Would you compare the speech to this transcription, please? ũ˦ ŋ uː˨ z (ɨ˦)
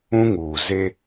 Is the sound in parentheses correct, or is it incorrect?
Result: incorrect